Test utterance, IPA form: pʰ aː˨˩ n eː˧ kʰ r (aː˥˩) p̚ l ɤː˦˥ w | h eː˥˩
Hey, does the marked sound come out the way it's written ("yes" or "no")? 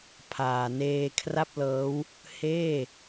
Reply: no